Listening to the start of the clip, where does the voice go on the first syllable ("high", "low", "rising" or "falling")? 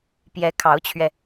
rising